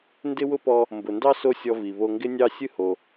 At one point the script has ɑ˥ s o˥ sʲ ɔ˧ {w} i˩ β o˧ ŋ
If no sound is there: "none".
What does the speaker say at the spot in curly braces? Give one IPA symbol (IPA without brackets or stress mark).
v